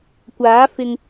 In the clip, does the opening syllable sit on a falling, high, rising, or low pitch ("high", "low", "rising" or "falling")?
rising